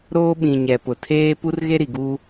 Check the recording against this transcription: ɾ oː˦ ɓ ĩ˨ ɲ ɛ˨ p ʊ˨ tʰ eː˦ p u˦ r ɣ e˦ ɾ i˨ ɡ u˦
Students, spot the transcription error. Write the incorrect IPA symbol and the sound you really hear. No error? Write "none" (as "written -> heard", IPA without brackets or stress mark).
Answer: none